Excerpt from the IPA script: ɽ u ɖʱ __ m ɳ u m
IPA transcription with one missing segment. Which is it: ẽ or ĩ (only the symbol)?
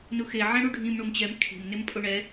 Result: ĩ